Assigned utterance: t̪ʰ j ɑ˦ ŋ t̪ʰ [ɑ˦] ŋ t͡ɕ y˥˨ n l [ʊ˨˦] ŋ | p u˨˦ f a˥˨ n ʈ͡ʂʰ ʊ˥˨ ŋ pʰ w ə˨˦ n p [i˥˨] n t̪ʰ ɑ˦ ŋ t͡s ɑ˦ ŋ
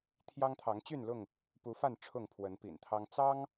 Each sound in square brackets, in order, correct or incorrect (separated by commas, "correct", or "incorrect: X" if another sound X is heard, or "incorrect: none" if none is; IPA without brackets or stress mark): incorrect: ɑ˨˦, incorrect: ʊ˥˨, incorrect: ḭ˨˩